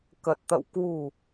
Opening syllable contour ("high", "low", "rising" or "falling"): low